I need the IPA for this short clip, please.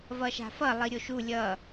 v ʌ ʃ a̤ f ʌ lˠ i ɾʲ o ʃ u lʲ ʌ

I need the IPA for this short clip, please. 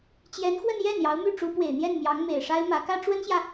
t͡ɕ j ɛ˧˥ n x w ə˥˧ n j ɛ˥˩ n j ɑ˧˥ ʊ̯ m y˥˩ ʈ͡ʂ u˧˥ p w e˨˩ ɪ̯ n̪ j ɛ˥˩ n m j ɑ˧˥ ŋ m e˨˩ ɪ̯ ʂ a˥ ɪ̯ m ä˧˥ k ä˥ ʈ͡ʂ w ə˥ n ɕ j ä˨

